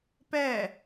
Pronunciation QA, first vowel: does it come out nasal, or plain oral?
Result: oral